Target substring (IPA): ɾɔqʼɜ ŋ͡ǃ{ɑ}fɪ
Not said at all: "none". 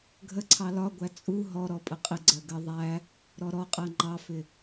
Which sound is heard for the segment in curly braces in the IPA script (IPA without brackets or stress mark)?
ɑ